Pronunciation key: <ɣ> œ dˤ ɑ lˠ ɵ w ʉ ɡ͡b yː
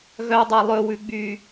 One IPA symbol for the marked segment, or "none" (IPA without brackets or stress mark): ɣ